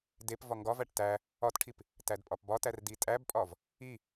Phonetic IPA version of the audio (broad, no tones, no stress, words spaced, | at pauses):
dep vɒŋɡɒvæʈ tæ | ɒtʈʰip | tædpʼɒpbɒtær ditʼæbpʼɒv | i